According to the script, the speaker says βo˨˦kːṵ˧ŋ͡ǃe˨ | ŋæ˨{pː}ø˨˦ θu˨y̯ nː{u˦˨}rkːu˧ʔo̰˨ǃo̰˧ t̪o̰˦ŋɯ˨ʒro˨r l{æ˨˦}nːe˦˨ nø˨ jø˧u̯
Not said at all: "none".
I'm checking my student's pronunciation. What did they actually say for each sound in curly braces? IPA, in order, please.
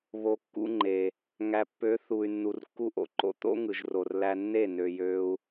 pː, u˨, æ˧

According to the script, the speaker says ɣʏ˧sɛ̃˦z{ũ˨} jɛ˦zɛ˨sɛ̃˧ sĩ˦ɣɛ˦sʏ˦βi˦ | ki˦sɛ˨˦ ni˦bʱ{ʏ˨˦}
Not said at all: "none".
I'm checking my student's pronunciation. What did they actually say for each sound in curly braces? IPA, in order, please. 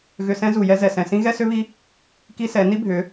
u˨, ʏ˨˦

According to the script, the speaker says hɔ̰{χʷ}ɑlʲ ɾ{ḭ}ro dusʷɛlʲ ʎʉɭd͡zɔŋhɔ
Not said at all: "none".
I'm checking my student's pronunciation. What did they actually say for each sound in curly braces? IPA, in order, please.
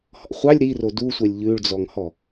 χʷ, i

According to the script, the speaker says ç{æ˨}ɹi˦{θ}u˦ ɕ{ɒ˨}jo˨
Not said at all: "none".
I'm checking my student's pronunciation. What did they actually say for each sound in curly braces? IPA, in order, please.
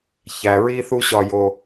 æ˩, θ, ɒ˨

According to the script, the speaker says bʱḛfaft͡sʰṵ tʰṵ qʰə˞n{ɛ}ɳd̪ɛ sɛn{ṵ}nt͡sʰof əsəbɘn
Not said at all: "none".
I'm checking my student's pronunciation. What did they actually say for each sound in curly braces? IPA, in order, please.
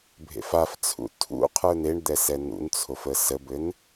e, ṵ

